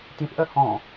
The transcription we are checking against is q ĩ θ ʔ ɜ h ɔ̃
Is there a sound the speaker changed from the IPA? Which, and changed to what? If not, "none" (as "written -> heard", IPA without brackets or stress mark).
q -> t